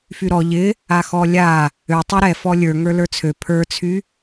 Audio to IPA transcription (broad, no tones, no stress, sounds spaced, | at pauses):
f y ɾ ɔ ʎ ɪ | a x ɔ lʲ a | ø tˤ ɛ ɾ ɛ f ɔ lʲ ə˞ ŋ ə˞ l ə˞ t͡sʰ ø pʰ ə˞ t͡sʰ y